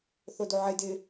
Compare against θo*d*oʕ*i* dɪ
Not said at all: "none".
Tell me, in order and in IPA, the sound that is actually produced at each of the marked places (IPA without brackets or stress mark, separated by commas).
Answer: d, ɪ